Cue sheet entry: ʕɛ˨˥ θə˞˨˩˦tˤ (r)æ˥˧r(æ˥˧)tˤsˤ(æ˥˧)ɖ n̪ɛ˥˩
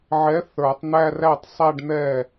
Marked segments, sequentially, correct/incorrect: incorrect, incorrect, correct

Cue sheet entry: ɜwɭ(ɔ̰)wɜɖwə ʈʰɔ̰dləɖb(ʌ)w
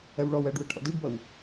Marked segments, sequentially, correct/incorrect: incorrect, correct

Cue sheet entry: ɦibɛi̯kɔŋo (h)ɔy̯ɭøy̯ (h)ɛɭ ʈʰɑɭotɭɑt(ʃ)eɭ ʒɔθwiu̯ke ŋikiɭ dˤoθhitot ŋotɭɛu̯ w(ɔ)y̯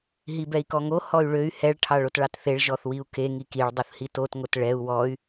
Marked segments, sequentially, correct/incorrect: correct, correct, incorrect, correct

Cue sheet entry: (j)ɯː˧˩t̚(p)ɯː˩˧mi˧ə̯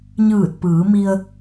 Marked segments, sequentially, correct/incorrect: incorrect, correct

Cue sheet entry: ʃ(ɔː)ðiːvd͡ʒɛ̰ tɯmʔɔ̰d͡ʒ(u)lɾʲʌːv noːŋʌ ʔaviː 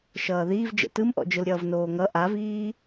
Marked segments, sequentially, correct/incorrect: incorrect, incorrect

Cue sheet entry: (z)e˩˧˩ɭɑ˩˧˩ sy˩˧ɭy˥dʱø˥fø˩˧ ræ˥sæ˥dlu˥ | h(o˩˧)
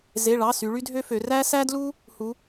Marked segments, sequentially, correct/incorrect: correct, incorrect

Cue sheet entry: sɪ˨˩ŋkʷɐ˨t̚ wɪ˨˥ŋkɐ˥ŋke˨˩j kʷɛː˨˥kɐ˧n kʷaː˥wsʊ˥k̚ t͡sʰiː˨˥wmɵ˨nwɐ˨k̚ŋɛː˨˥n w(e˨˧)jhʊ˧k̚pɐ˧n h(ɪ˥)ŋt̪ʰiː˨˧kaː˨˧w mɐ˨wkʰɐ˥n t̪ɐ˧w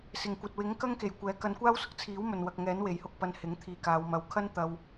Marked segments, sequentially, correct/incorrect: incorrect, incorrect

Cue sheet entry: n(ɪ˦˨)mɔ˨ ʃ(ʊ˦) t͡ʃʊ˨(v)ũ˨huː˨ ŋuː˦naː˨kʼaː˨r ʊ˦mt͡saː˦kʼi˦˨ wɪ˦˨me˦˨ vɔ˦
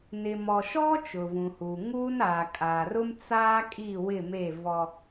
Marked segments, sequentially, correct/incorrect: incorrect, incorrect, correct

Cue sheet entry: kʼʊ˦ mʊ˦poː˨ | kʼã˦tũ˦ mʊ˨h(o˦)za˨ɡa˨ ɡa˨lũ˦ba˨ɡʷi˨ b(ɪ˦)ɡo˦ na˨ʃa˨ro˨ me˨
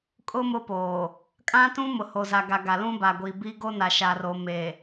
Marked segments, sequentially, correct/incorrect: incorrect, incorrect

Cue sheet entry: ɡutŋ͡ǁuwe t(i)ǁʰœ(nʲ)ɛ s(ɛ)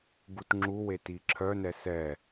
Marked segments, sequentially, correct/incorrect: correct, incorrect, correct

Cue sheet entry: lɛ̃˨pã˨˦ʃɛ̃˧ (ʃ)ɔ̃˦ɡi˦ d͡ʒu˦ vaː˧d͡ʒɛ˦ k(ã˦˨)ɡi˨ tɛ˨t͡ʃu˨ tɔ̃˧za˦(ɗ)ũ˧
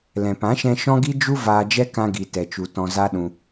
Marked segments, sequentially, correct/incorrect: correct, incorrect, correct

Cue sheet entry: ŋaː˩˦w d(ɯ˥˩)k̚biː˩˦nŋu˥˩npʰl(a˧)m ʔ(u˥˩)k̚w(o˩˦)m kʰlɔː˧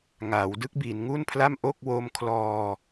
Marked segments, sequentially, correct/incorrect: correct, incorrect, incorrect, incorrect

